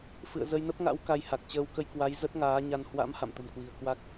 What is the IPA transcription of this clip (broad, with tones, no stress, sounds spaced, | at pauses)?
f ɨ̰˧˨ ə̯ z ə˧ j n ə˦˥ p̚ ŋ a̰˧˥ w k a˧ j h a˨˩ k̚ t͡ɕ əː˧ w k ə˧ j k w a˨˦ j z ə˦˥ t̚ ŋ aː˨˦ ɲ a˧ n h w a̰˧˥ m h a̰˧˨ m t̪ ə̤˨˩ m k w i̤˨˩ ə̯ k w a˦˥ k̚